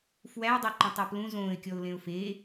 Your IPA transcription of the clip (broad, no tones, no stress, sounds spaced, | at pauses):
f w æ ɪ̯ dˤ o ǃ ɔ̃ tˤ ɔ p l ũ z õː ɪ̯ kʲ ɔ ʊ̯ l ẽ ʊ̯ f e